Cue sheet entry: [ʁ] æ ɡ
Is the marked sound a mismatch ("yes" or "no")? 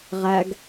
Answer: no